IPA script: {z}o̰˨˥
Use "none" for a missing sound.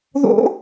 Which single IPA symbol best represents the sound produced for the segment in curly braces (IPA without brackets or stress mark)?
ð